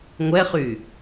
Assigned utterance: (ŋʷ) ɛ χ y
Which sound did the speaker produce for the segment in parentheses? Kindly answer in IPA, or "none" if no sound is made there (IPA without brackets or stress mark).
ŋʷ